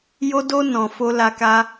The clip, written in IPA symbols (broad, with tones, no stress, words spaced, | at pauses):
jo˧do˧ nɔ̃˨ fo˧ la˧ka˦